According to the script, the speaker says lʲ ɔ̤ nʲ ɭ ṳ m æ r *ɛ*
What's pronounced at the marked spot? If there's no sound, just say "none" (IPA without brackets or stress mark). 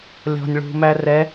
ɛ